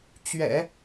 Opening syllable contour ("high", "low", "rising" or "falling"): low